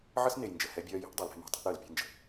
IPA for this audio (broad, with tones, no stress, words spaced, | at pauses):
ʕə˦sne˨jnd͡ʒə˨ hɛ˦bʲɜː˦ je̤˦ʔdˤəː˨l ɾɛ̤˦ma̤˨ tˤa̤˦ʔɾəː˨l pʲɛ̤˦nd͡ʒə̤˨